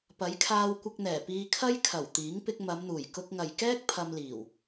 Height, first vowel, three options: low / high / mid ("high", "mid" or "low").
low